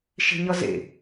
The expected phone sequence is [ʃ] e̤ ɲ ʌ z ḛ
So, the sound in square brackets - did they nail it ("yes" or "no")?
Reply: yes